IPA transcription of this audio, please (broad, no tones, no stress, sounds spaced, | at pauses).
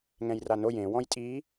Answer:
ŋ ɛ̃ j r a n o j ẽ w ɔ̃ j tʼ i